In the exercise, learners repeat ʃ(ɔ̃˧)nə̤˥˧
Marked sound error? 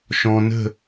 no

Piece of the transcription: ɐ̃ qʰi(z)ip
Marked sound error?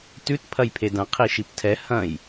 yes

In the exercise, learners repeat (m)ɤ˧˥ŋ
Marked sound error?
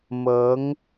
no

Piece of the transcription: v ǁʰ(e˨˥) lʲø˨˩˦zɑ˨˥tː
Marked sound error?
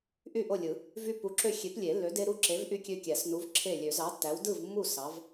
yes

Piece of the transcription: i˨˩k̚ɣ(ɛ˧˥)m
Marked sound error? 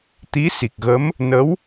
yes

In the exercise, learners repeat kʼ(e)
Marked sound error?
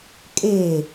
no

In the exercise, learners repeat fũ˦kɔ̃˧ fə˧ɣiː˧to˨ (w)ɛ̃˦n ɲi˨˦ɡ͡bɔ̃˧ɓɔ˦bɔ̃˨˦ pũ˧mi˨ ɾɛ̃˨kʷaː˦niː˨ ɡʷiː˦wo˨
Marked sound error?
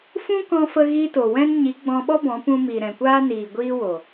no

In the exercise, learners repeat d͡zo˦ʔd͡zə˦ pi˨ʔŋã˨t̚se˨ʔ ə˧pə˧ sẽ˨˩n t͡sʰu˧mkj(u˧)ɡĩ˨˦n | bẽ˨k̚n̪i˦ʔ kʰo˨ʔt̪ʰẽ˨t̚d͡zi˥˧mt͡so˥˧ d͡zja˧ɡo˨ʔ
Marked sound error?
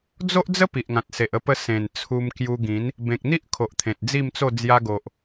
no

